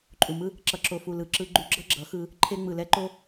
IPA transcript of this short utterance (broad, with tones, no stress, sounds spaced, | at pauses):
ǃʼ u˨ m ɯ˦ | ǁ ʌ˨ ǁ o˨ f u˨ l ɯ˨ ǁ ɯ˧ ɡ͡ǃ u˧ ɡ͡ǁ ʌ˦ ɡ͡ǁ ʌ˨˦ x ɯ˧ | ǃʰ e˧ ŋ͡m ɯ˨ l ɛ˦ ǃ o˦